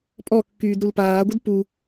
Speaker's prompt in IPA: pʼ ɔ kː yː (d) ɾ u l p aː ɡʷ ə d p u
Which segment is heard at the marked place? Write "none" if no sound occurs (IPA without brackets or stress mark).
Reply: d